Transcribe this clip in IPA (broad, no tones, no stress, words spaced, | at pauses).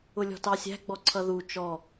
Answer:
ʊlʲɔ̤tɑsʲæ̤ ɡ͡bɔǀʰʌðu t͡ʃɔ